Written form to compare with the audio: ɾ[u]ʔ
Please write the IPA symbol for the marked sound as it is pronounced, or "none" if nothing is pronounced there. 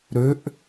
ø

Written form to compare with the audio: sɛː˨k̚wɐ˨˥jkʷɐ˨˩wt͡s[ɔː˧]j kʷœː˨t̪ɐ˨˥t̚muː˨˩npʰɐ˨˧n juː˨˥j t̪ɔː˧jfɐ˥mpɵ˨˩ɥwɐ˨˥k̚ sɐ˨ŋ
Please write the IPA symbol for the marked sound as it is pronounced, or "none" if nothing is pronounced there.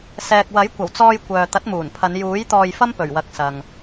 ɔː˧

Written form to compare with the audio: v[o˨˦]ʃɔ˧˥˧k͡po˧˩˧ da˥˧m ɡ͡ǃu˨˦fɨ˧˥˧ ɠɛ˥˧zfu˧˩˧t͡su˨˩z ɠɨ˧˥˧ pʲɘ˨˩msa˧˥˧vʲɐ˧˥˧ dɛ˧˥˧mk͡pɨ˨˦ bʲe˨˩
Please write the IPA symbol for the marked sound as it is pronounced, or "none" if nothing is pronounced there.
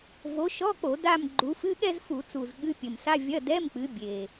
o˨˦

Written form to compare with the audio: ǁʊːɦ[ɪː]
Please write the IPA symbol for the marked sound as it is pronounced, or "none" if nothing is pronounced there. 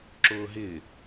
ɪː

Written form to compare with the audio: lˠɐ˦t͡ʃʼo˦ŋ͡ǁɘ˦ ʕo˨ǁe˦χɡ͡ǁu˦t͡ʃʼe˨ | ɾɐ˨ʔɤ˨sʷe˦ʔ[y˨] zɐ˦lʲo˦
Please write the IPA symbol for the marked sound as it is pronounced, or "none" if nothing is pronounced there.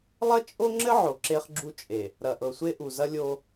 u˨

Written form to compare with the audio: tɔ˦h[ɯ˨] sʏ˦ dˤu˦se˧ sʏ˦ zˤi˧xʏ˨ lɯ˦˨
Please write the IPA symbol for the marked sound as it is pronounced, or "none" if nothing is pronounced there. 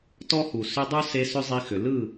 u˨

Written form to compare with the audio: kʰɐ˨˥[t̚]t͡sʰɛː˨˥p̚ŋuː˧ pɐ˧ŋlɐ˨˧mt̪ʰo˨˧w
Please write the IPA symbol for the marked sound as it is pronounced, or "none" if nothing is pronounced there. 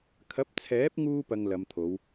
p̚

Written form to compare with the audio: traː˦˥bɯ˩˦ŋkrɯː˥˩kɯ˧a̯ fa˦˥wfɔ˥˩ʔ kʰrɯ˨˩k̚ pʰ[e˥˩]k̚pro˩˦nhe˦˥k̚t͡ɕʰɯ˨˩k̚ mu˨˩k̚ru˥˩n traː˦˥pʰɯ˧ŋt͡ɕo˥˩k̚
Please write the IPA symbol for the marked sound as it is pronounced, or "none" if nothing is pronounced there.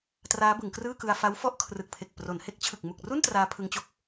e˨˩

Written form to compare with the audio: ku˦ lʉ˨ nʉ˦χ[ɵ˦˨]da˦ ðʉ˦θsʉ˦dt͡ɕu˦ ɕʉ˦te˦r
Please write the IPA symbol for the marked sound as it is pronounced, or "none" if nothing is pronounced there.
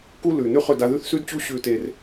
ɵ˦˨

